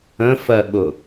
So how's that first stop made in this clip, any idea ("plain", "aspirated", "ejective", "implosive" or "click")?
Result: implosive